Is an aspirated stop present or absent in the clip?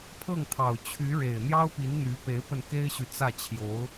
present